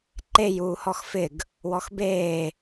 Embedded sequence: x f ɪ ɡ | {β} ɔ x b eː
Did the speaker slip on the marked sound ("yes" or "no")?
yes